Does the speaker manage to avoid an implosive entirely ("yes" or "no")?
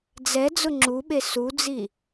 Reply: no